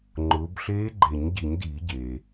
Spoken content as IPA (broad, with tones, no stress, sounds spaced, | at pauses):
ŋ͡ǃ ʊː˨˦ b ɬ eː˦˥ ɡ͡ǃ e˨˩˦ ɲ ɟ i˨˩˦ ɲ d iː˨˩˦ ɟ e˩